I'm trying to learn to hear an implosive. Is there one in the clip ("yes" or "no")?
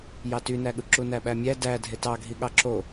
yes